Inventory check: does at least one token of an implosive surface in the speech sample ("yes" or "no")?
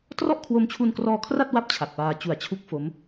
no